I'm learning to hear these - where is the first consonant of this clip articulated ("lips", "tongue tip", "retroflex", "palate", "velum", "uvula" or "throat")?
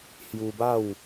throat